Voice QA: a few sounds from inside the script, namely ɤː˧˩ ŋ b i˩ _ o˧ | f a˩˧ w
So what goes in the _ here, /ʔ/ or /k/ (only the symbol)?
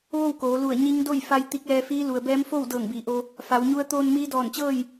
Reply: ʔ